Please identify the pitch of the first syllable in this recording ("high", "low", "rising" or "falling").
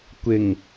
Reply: low